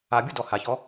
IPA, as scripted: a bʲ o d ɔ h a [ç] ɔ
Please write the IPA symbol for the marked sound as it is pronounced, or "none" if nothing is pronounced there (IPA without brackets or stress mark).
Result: ç